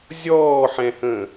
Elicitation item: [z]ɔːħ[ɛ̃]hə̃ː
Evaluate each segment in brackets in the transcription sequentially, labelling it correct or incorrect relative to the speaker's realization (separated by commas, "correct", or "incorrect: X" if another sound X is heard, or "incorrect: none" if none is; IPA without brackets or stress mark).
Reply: incorrect: zʲ, correct